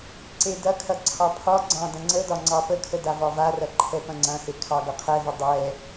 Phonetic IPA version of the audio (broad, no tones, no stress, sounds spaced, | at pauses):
ǀ e d ɐ kʰ ɐ ǀʰ ɑ pʰ ɒ ɡ͡ǀ ɑ̃ d ɐ̃ ŋ͡ǀ ə d ɒ ŋ͡ǀ ɑ p ə kʰ ə d a v ɒ v a r ɐ ǃʰ ɛ p ɐ̃ ŋ͡ǀ ɐ̃ h e kʰ ɑ ɡ ɐ qʰ ɛ v ə dˤ ɛ